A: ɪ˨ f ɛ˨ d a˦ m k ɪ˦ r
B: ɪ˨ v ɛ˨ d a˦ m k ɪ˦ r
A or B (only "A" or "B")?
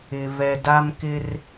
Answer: B